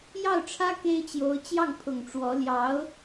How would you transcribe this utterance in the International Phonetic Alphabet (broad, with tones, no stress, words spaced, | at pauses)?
jɑ˥˩ʊ̯ʈ͡ʂʰä˥ ke˥ɪ̯t͡ɕjo˧˥ʊ̯ t͡ɕjɑ˥˩ŋpʰʊ˨˩ŋ ʈ͡ʂwɔ˧˥ ljɑ˧˥ʊ̯